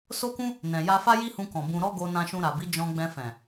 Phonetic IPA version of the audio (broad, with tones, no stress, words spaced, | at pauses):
so˦kũ˦ | nɛ̃˨ja˧fa˦ ji˦hũ˧kɔ̃˨ bũ˧ ɾɔ˦ɡo˧ nã˧ʃũ˧ɾa˨bi˨˦ d͡ʒɔ̃˧ɡ͡bɛ̃˧fɛ̃˨